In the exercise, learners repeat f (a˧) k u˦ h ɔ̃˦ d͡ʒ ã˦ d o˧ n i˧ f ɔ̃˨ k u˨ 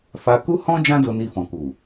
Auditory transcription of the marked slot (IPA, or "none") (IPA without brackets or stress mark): a˧